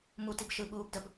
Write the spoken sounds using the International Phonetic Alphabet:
mutib ʃɯɓuːb dəb

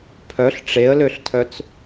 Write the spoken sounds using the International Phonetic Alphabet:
pʰœɬ ʈ͡ʂeə̯løɬtʰœt͡s

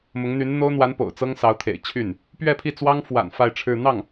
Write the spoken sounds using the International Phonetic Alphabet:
mʊ˧˥ŋn̪y˧˥n n̪o˥ʊ̯n̪wa˧˥n po̰˨˩ʊ̯t͡sɤ˥ŋsɑ˧˥ʊ̯ t̪ʰḛ˨˩ɪ̯t͡ɕʰy˥˩n | pɥɛ˥˧pʰi˥˩t͡swɑ˥ŋ fwa̰˨˩n fa˥˧ɪ̯ʈ͡ʂʰɻ̩˥˧ n̪ɑ˥˩ŋ

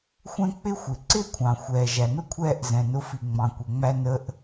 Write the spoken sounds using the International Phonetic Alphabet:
xʷɛ̃˥k͡pɪ˥xʷɪ˩ ǀɪː˥kʷʰɑ̃˩ xʷɛː˩ ʒæ˩nʊ˥kʷʰɛː˧ʔ zɛ̃˩nʊ˧fi˩ ŋ͡mɑ̃˩kʷɜ˩ŋ͡mæ˧ nə˧ʔ

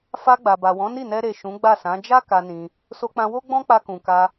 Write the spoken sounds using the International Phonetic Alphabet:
fa˧ɡ͡ba˨ba˨wɔ̃˨˦ ni˦˨nɛ˧ ɾe˨ ʃũ˨˦ɡ͡ba˦˨sã˨˦ d͡ʒa˦ ka˧nĩ˧ | so˧k͡pã˧wo˦ ɡ͡bɔ̃˦k͡pa˧kũ˨ka˧

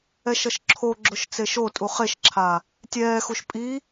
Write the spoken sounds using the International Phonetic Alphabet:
ɛʃʌʃǁʰoɡ͡ǁoʃ t͡seʃotʼu χeʃǁʰa | tʲɛːxuʃ pʼi

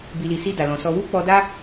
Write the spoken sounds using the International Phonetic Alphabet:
bi˨li˨si˧ da˨lɔ̃˨ sɔ˧ wu˦k͡pɔ˧da˦

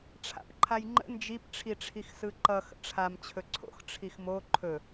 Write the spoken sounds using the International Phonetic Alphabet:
ʈ͡ʂʰa̰pǃʰajŋ͡ǃə̰ nd͡ʒip ʈ͡ʂʰiʈ͡ʂʰixsɯǃʌ xə̰ʈ͡ʂʰam t͡ɕʰɵǀʰo̰x ʈ͡ʂʰixmo ǃʰɵ

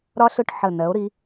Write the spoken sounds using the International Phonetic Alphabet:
ɾɒ˥ɬʊ˥˧ʈ ħə˧˩ nɜ˩˧o̯ɾi˩˧

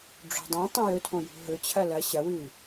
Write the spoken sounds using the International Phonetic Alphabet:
ɖ͡ʐo̤dˤĩ tˤĩjɵtʰõ jṳɦɵ t͡ɕʰɐlɐ ɕɐwɨ

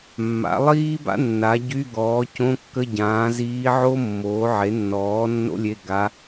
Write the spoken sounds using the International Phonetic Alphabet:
mːa̰˩˥lˠiː˥ba̰˥ nːa˩˥ ɟy˧˥˧ɡɔː˩˥ cõ˧˥˧kːə˧˥˧ ɟãː˩˥ ziː˧˥ ʕo˥mːoː˩˥ ʕe˩˥nːɔː˩˥ nːo̰˥lʲe˧˥˧ɡa˧˥

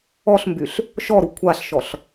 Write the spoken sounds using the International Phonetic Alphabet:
ɔɬmbyɬ | ʃɔɾu kʷʰaɬʃɔɬ

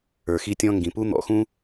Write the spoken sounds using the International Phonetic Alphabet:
ə˞˨xi˧tʲɔ̃˧ ŋɡĩ˨pu˦ n̪ɔ̰˧xũ˦

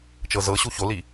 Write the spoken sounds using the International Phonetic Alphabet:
t͡ʃɤzɤɕu çoli

